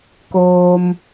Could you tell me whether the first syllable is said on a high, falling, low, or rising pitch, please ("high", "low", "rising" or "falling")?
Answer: low